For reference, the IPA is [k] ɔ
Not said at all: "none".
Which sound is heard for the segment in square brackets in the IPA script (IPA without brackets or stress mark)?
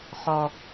χ